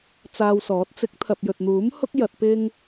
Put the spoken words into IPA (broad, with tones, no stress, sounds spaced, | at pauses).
t͡s aː˧ w s ɔː˨˥ t̚ t͡s ɪ˨˥ k̚ t̪ʰ ɐ˨ p̚ j ɵ˨ t̚ n̪ uː˨˥ m h ʊ˥ k̚ j ɐ˧ t̚ p ɪ˥ ŋ